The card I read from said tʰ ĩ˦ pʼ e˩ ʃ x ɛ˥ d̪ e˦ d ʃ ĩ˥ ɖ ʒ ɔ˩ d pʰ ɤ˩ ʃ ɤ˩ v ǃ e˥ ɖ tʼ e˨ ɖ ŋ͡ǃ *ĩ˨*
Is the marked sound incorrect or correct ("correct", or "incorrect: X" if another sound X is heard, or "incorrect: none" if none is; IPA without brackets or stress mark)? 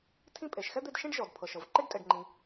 correct